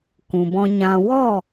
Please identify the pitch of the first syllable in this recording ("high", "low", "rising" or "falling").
low